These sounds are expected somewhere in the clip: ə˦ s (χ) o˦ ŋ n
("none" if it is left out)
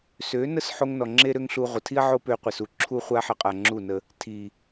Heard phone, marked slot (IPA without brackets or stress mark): ħ